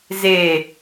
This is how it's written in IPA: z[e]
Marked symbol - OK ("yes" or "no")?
yes